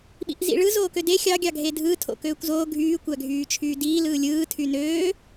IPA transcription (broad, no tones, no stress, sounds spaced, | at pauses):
ɓ ḭ ʔ z ḭ ɭ ɯ z oː k ø d e xʲ ɑ ɡʲ ɑ ɡʱ e dʱ ɯː tʰ o̰ k øː kʷ z oː ɡʱ yː kʷ æ ɡʱ yː t͡ʃʰ yː d iː l ɯː lʲ ɯː tʰ y n øː